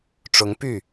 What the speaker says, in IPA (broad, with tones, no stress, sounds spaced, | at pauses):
ʈ͡ʂ ʊ˧˥ ŋ p y˥˩